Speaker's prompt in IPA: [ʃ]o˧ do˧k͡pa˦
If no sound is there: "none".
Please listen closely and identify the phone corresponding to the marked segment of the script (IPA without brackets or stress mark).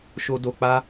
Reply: ʃ